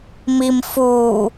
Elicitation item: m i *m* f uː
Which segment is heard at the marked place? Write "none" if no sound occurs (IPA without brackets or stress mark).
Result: m